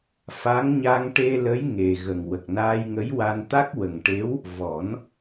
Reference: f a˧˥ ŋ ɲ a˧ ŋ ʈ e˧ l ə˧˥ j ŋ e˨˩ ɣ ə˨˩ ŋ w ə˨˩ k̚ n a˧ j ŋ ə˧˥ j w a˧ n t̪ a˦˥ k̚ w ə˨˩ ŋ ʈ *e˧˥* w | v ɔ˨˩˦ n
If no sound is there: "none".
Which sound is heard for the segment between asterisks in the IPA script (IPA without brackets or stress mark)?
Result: e˧˥